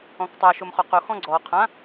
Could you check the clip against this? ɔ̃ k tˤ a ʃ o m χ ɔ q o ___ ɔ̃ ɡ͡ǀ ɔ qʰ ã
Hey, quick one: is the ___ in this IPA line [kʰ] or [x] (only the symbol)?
x